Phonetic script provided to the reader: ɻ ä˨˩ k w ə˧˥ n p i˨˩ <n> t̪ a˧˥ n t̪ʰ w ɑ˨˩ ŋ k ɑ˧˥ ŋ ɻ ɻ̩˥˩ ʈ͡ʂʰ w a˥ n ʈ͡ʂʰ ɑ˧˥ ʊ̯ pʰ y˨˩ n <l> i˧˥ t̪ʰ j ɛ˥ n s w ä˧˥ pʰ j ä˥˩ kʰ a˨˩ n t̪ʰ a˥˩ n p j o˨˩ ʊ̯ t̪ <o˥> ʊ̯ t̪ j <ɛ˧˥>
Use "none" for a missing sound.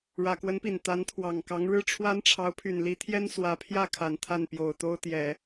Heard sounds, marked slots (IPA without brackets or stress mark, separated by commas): n, l, o˥, ɛ˨˩˦